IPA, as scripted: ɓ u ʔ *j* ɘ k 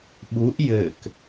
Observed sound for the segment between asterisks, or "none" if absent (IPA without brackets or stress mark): j